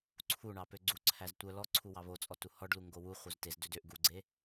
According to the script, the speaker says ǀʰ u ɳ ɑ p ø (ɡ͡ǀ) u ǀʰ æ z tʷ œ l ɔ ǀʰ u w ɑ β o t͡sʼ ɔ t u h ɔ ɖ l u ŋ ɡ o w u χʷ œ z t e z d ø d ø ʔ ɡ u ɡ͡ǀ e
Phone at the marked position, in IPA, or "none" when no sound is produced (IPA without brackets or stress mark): ɡ͡ǀ